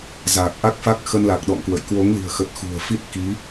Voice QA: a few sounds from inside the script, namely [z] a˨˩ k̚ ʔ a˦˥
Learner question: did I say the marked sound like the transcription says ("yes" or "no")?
yes